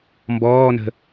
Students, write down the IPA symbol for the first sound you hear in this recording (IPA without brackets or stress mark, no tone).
m